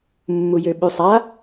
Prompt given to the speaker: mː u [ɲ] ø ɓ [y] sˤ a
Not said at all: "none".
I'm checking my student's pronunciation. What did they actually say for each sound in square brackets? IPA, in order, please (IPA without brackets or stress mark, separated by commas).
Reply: j, y